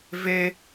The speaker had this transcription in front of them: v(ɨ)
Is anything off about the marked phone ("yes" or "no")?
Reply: yes